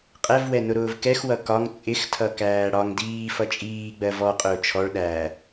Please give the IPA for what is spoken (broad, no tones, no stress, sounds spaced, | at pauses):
qʼ ɛ v w ɛ n ʊ ɾ ʊː v k ɛ x w ʌ k ɒ ŋ t͡sʼ ɪ x tʰ ʌ k æː ɽ ɒ ŋ d iː f ʌ t͡ʃʼ iː ɡ͡b ɜ v ɔ qʼ ʊː t͡ʃʰ ɔ ɭ ɗ æ